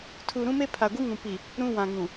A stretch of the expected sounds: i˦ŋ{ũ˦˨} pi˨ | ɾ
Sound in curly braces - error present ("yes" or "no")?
yes